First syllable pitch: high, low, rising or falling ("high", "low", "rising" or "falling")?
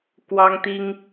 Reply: high